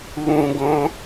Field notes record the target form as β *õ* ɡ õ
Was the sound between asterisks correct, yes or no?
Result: no